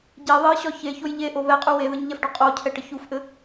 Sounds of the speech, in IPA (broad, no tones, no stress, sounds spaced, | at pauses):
ɟ e ðˤ e j ɕ ɒ ç e ç o j ʎ e ʔ o β ɛ qʼ u w e ð ɘ ɲ ʎ ɛ f ɖ ɒ qʼ o cʰ ɛ ʈ ə ç u f ʔ ɘ